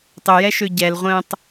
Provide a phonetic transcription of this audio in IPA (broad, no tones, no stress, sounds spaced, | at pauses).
tˤ ʏ j ɛ ʃ ø ɟ ɛ l ʁʷ ə̃ː tˤ